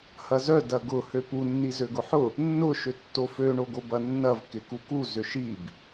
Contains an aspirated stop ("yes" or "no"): no